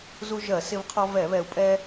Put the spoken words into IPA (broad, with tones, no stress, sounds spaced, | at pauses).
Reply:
z u˧ ʒ ɜ˧˩˧ s ɪ˧ v qʰ ɔ˧ v ɛ˧˩˧ β ɛ˨˩ u̯ pʼ ɛ˧